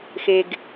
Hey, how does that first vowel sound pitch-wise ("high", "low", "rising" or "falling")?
low